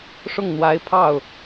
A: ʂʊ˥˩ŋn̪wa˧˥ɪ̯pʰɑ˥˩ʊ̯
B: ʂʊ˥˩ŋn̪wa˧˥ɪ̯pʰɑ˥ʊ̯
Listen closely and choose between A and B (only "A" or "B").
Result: A